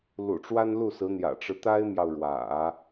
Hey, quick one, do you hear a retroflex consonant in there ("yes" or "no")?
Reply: yes